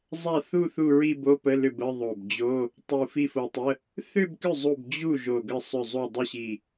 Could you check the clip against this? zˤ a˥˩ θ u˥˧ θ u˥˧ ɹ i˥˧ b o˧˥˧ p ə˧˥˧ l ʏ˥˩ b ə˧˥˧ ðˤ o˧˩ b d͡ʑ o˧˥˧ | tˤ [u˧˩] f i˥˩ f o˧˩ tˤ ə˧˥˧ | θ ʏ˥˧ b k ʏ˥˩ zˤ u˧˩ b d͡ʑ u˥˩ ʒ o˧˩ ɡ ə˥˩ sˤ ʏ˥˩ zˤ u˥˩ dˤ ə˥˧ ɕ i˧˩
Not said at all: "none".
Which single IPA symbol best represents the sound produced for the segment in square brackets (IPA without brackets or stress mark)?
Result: u˧˩